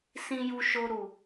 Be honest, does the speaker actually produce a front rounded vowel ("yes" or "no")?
no